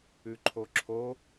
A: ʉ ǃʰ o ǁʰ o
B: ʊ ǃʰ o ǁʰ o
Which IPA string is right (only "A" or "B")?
A